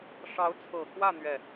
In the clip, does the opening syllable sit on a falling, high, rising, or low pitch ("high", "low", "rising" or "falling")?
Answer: rising